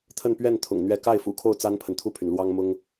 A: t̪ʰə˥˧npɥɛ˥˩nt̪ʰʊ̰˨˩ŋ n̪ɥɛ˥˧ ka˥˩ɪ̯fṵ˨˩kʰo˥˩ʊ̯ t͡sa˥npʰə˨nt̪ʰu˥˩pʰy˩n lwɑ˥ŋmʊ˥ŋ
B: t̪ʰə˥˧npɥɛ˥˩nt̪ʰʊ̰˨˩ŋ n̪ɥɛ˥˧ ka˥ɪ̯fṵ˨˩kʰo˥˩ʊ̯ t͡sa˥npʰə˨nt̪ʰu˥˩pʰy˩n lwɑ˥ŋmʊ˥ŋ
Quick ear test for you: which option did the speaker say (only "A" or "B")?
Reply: A